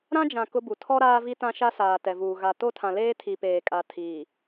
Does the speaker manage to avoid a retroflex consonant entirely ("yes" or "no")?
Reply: yes